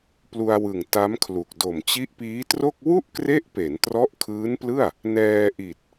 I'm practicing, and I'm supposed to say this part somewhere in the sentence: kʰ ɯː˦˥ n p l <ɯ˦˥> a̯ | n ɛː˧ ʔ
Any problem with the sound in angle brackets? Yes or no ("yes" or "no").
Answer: yes